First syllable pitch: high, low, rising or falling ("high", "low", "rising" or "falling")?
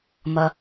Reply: low